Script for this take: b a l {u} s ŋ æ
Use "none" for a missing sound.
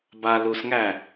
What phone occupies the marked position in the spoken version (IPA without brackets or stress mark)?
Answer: u